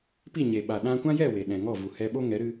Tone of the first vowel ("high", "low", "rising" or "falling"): falling